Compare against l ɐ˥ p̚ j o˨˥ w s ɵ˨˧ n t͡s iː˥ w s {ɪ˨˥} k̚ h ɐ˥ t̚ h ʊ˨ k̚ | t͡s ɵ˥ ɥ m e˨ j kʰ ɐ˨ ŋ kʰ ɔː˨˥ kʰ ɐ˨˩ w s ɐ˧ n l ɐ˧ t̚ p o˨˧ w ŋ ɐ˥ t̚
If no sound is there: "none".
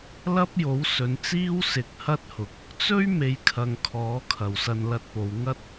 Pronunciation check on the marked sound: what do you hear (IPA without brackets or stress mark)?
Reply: ɪ˨˥